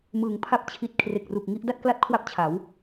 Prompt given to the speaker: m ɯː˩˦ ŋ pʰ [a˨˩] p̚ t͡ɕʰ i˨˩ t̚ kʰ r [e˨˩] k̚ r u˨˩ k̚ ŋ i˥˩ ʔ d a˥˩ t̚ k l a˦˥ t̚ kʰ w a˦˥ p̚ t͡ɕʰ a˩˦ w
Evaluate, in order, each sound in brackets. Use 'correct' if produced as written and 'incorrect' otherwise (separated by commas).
incorrect, correct